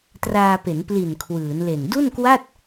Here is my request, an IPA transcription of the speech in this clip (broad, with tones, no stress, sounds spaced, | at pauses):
t r aː˧ p e˩˦ n p l i˨˩ n kʰ w ɯː˩˦ n l e˨˩ n d u˥˩ n k w a˥˩ t̚